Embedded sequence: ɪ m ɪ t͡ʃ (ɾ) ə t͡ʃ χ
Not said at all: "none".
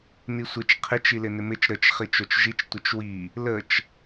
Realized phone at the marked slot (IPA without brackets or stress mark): ɾ